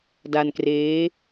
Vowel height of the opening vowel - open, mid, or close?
open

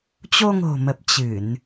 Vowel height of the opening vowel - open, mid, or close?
mid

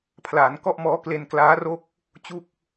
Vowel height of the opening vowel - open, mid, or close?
open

